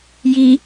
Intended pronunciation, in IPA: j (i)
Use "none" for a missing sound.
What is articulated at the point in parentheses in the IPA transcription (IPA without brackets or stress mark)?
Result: i